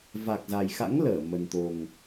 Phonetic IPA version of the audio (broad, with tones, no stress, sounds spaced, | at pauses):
v a˨˩ k̚ z a˨˩ j x a̰˧˥ ŋ l əː˧˩ m ə˨˩ n t̪ o˨˩ ŋ